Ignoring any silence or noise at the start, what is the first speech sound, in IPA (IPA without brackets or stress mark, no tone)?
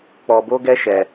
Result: k͡p